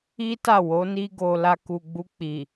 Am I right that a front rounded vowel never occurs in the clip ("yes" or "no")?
yes